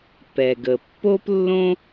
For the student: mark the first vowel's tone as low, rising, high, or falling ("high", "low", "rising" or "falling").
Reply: low